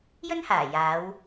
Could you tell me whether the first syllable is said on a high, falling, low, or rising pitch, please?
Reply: high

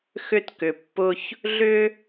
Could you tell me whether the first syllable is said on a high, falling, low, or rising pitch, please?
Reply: high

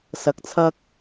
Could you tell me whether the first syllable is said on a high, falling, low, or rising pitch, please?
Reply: low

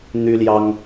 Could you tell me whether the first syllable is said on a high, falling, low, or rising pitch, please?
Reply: high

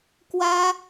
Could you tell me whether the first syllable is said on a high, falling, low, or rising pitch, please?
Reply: high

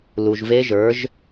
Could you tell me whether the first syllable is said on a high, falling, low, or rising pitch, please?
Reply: low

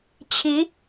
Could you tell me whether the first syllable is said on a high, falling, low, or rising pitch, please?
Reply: rising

